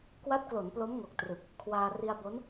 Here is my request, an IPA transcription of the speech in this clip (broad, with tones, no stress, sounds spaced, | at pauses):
k w a˦˥ t̚ k l o˩˦ n p l o˦˥ m ŋ o˨˩ k̚ t r ɯ˨˩ k̚ | kʰ w aː˧ r i˧ a̯ b o˦˥ n